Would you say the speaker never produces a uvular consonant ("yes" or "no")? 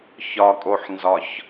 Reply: yes